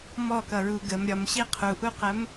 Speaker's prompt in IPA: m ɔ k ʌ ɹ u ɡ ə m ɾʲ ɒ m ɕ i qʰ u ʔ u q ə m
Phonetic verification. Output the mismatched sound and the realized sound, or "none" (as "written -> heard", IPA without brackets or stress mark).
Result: none